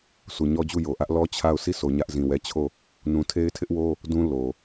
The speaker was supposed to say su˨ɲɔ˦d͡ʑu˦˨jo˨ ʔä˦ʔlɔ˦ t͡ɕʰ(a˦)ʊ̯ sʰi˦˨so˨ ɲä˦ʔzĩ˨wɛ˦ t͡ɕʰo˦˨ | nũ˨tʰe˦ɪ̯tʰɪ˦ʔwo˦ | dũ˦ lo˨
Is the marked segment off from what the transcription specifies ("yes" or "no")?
yes